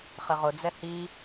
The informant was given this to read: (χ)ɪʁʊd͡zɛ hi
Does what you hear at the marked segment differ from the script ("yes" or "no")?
no